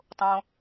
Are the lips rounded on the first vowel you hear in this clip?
yes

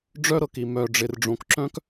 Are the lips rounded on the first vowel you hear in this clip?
yes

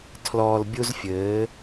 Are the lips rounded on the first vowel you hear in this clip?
yes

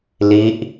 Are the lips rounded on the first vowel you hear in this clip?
no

